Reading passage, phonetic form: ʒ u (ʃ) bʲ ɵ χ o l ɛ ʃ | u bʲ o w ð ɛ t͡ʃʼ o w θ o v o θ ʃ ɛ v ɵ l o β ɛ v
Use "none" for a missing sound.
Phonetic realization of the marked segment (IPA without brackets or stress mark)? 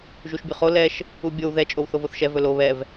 ʃ